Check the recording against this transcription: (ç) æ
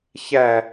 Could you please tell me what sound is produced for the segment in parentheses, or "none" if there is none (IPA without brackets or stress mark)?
ç